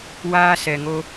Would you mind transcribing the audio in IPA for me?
waː˦sɛ˨ŋo˧

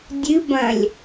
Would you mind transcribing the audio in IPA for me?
dʲɨbɐ̃lʲ

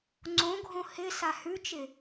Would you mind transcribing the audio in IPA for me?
ŋ͡ǀõɡʱõ hɪ sahʉt͡ʃɪ

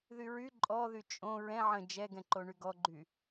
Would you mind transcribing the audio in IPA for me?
ðyɹy ǃʼɔðy t͡ʃʼõ ɹɛ̃ ʕə̃ d͡ʒɛɡɛ̃ǃo ɳyɡɔɡ͡ǃy

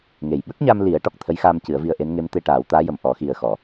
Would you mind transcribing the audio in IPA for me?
ŋe˨˩jɓə˦˥k̚ɲa˧m li˨˩˦ə̯ ʈɔ˨˩k̚t̪ʰə˧˥jxaː˧m cɨ˨˩˦ə̯vi˧ə̯ʔe˧˥nŋe˧˥m t̪e˧ʈaː˨˩˦wt̪aː˧˥jə˨˩m ʔɔ˨˩˦xi˨˩ə̯xɔ˨˩˨

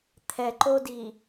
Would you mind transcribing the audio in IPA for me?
t̪ʰɛǃodi

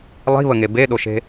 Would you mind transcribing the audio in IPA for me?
lˠi̤βəŋe beɗoʃe̤

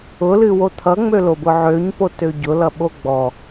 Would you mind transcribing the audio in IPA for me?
ʊlɨwo t̪ʰʌŋ͡mølobʊ ʕøɲpotø ɟʊlʌɓo ɡ͡bɔ

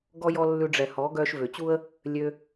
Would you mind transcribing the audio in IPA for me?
ɡɔ˦jɔ˦ lːʉ˧ɖ͡ʐɛ˨hɔ˨˦ ɡœː˧ʃvø˨t͡ɕu˦ə̯ | lʲø˧

